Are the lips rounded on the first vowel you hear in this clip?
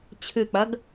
no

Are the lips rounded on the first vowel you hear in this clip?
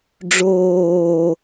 yes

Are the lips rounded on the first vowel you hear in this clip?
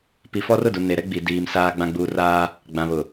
no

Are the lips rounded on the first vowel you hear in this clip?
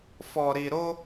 yes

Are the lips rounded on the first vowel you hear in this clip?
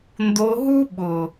yes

